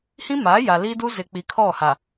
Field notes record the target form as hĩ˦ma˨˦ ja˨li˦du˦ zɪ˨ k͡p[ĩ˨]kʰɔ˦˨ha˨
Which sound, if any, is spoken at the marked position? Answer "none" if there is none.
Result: i˨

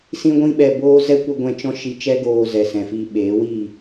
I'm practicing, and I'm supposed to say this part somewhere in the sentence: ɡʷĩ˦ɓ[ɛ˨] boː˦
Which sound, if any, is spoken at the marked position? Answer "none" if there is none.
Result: ɛ˧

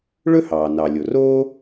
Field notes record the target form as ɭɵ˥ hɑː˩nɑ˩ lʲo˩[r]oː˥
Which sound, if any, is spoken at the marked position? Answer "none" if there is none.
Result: r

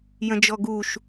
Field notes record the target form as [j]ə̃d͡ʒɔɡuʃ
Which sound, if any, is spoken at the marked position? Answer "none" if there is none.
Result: j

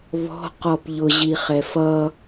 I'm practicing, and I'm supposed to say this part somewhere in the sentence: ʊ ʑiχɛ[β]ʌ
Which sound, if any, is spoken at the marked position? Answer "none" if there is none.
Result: f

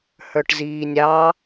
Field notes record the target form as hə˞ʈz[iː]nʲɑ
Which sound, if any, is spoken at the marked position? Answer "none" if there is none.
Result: iː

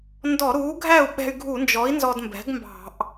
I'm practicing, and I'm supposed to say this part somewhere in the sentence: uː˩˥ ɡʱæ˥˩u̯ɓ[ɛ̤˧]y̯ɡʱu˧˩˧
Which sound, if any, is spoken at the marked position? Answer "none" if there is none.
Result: ɛ̤˧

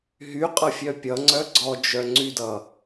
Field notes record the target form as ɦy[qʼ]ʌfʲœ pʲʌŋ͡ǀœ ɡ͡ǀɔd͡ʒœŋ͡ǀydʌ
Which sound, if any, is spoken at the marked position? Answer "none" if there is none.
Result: qʼ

